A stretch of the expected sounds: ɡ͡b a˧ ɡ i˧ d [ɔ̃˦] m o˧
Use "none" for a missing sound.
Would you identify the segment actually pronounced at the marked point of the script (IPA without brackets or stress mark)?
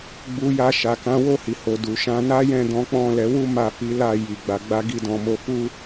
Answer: ɔ̃˨